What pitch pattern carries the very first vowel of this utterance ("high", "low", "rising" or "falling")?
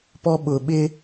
high